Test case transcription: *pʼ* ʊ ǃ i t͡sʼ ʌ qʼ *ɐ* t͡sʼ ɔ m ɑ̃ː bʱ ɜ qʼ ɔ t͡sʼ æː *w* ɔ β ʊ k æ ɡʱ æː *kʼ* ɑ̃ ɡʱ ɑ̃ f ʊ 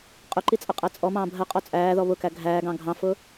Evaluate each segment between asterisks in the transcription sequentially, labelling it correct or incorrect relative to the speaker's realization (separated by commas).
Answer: incorrect, incorrect, incorrect, incorrect